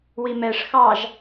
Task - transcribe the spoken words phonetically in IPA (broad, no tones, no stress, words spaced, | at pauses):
wimɛʂ xɑʒ